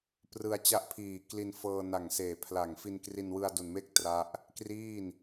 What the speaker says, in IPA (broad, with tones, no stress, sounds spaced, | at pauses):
p r ɯ˧ a̯ t͡ɕ a˦˥ ʔ pʰ iː˨˩ k l i˧ n f ɤː˧ n a˨˩ ŋ s eː˨˩ pʰ l a˨˩ ŋ f i˧ n k r i˧ n w ɯ˧ a̯ d u˨˩ n m e˥˩ k̚ t r a˦˥ ʔ | k r iː˥˩ n